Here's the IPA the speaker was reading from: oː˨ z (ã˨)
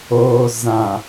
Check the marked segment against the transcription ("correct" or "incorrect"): correct